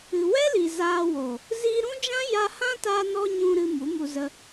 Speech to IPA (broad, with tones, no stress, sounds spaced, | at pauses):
ɨ˨ w ɛ˦ l i˨ z aː˧ w o˨ | z iː˧ ɾ ũ˦ d͡ʒ ã˦ j a˦ h ã˦ t aː˧ n ɔ˧ ɲ ũ˧ ɾ ɨ˧ m u˨˦ m u˧ z ə˧